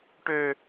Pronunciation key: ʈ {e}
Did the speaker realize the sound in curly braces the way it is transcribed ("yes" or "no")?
no